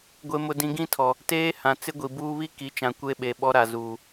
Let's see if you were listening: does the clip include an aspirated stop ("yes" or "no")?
yes